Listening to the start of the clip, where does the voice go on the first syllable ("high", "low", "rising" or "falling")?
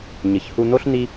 low